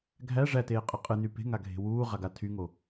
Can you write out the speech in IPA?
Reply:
ɡʱ æ ʐ æ t eː qʼ a qʼ ɨ n y p e̤ ŋ a ɡʱ e̤ w uː ʁ a ɡ a tʰ y ŋ o

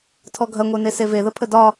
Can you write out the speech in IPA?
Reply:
tʰ ɔ ɡʱ ɐ ŋʷ e n e s e v e ð ə pʰ ə d ɒ

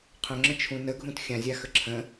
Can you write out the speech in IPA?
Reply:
qʰ œ̃ ŋ͡ǁ ə̃ t͡ʃʰ ũ n ə ɡʱ ũ t xʲ ã zʲ a x ə ǁʰ ə̃

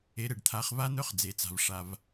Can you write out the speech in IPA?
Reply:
e˩˧ ɾ e˩ ɖ t̪ʰ a˩˧ χ v a˦˥ n̪ œ˦˥ χ d͡z e˩ t͡s a̤˩ v ʂ a˩ v

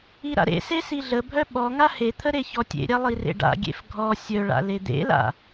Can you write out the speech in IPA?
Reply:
i ɾ a̰ ɾ ḛ s e s i ɮ ə bʱ œ ɓ ɔ ŋ a h e t̪ʰ ə ɾ e ç ɔ tʲ ḛ ɾʲ a lˠ i r ḛ ɖ a̰ ɡʲ ḛ f ɡʱ ɔ sʲ œ ɭ a̰ l e d̪ ḛ l a̰

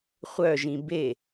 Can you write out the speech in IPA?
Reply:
χʷ œ ʒ ĩ b e

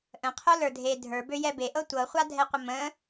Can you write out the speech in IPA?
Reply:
ʔ ə̃ qʰ o l ə˞ dʱ e dʱ ə˞ b ø j ɛ b e ʔ ɤ tʷ ɤ χʷ a dʱ ɛ qʷ ə m ə̃

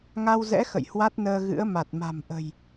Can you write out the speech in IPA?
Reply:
ŋ a˧ w z ɛ̰˧˥ x ə̰˧˨ j h w a˦˥ t̚ n əː˧ ɣ ɨ̰˧˥ ə̯ m a˨˩ t̚ m a̤˨˩ m ʔ ə̤˨˩ j

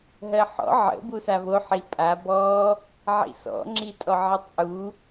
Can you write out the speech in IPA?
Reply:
ɦ ɜ ħ ɔ̰ ʕ ə̰ b u s a β o ħ i pʼ a b ɔ | ʕ ḭ s ɔ̰ ŋ͡ǁ i tʼ ɔ ʕ i tˤ ʔ u

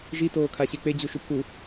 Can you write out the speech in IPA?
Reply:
ʒ i t oː kʰ a ɕ e k͡p e d͡ʑ u ʃ u pʰ u

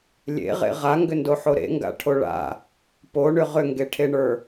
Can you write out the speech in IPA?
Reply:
lʲ ḛ ʁ ḛ ʁ a ŋ ɡ ʏ n d o ħ o ɾ ḛ ŋ ɡ a̰ ʈʰ o ɭ a̰ | p o ɳ ʏ ʁ ʏ ŋ ɡ e ʈʰ e ɳ ə˞

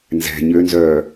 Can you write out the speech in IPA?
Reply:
n z ɛ̤ ɲ ø n z œː

